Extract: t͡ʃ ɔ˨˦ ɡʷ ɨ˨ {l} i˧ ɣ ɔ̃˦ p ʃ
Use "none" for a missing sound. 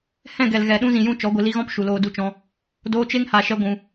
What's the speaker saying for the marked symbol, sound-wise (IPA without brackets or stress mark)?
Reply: l